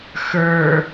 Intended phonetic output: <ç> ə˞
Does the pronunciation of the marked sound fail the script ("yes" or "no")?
yes